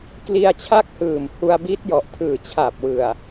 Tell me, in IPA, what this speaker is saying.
k l i˧ a̯ t͡ɕʰ a˥˩ k̚ h ɯː˨˩ m h u˧ a̯ b i˦˥ t̚ j ɔ˨˩ ʔ tʰ ɯː˨˩ t͡ɕʰ a˨˩ p̚ w ɯ˨˩ a̯

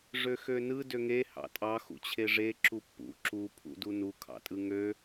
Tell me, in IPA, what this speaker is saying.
ʐ ø x ø n ɯ d ø ŋ e h ɑ̰ tʼ ɑ x ṵ t͡ɕʰ e ʐ e ǁ u pː ṵ ǁ u pʰ ṵ d u n u kʰ ɑ̰ tʼ ɯ ŋ ø

